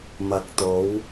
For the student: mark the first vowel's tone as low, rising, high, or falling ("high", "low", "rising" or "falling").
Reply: low